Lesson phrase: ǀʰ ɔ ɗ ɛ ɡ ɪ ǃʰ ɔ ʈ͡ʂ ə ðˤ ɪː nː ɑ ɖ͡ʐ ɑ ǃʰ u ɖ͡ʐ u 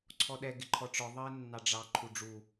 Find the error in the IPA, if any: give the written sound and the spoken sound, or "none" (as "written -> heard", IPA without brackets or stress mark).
ə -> ɔ